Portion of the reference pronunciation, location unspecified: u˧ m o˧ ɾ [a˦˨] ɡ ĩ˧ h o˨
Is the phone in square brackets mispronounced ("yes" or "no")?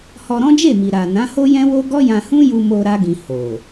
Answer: yes